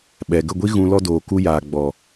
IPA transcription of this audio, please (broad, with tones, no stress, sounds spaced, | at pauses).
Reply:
ɓ ɛ˨ ɡ ə˦˨ ɡʷ i˦ ɣ ũ˧ l ɔ˧ d oː˨ k u˧ j aː˨ ɡ͡b ɔ˨